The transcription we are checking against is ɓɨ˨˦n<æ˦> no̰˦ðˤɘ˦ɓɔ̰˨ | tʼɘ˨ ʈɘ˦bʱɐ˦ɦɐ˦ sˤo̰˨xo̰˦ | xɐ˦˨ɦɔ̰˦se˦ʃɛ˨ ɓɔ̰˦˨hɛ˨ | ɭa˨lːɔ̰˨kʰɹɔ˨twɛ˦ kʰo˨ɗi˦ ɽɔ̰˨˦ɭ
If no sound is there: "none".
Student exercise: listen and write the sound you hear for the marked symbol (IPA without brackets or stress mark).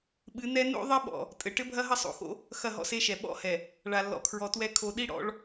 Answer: ɛ˦